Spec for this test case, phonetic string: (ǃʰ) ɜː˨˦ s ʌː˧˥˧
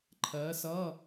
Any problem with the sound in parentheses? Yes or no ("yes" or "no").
no